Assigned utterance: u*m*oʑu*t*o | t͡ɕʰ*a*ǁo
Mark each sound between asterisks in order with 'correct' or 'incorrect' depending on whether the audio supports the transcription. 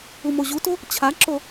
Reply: correct, correct, correct

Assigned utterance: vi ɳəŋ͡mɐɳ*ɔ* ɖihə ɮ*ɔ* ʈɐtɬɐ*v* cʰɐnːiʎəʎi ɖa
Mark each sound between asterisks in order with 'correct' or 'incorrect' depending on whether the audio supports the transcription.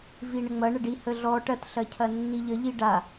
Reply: incorrect: ə, correct, incorrect: none

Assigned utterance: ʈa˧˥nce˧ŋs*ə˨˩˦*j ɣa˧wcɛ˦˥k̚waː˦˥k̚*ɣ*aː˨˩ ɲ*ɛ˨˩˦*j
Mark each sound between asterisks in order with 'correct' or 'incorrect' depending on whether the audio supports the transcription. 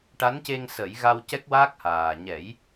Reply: correct, incorrect: h, correct

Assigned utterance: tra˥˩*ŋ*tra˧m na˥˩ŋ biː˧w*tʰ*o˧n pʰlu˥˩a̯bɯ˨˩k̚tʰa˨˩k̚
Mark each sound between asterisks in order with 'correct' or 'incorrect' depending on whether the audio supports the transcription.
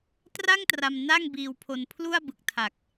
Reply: correct, incorrect: pʰ

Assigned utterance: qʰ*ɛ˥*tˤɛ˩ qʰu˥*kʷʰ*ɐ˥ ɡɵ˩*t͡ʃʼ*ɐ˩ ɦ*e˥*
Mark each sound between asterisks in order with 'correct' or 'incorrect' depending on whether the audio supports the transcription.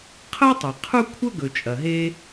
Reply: incorrect: ɜ˥, correct, correct, correct

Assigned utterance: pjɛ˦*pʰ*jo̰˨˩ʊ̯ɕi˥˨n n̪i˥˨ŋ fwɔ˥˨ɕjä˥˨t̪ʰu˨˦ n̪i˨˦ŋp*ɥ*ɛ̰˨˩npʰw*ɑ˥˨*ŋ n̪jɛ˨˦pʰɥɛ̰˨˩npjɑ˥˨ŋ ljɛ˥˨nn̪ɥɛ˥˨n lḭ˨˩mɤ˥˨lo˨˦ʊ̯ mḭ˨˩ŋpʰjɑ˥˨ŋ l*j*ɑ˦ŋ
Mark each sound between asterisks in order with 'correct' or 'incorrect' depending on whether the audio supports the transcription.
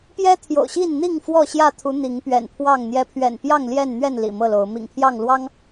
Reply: incorrect: t̪ʰ, correct, correct, incorrect: w

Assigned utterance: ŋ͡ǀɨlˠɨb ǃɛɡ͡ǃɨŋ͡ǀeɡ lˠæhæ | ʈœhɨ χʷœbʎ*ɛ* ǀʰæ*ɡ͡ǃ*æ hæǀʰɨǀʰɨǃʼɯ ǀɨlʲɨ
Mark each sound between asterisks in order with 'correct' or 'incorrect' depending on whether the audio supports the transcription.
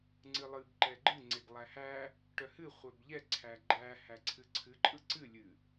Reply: correct, correct

